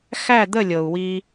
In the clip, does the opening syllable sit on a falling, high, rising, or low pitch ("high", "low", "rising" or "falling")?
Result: falling